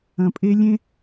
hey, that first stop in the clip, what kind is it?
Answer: ejective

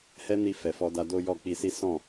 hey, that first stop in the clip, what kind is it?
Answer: plain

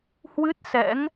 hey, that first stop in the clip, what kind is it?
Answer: plain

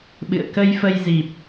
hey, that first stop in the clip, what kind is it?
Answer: implosive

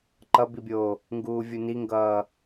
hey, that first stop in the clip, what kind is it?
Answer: click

